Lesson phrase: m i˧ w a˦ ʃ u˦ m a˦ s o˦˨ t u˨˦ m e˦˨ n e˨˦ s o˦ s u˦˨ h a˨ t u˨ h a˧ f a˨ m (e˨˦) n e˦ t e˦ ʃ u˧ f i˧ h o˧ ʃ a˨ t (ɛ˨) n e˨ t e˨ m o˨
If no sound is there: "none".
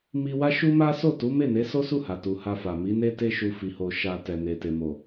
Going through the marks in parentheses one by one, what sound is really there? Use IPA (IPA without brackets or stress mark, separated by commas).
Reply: i˨˦, ɛ˨